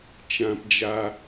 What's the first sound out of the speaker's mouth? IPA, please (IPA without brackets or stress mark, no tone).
t͡ʃ